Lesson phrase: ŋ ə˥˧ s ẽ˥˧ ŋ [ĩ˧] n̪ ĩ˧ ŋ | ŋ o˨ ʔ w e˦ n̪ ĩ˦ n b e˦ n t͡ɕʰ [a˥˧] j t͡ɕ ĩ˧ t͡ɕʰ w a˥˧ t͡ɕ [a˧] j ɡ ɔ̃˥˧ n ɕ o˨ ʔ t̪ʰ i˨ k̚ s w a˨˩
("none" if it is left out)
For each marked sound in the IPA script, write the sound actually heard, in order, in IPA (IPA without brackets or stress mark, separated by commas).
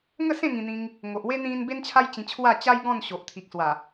ĩ˧, a˦, a˦